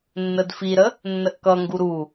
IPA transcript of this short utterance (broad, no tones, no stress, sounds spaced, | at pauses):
nː ə d f i ɾ ə | nː ə ʔ k ʌ ŋ ɡ u ɾ u